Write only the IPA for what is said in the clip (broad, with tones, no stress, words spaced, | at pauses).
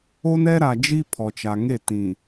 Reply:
o˦nɛ˦ɾa˨d͡ʒi˦ pʰɔ˨t͡ʃa˨ ŋe˦˨tĩ˨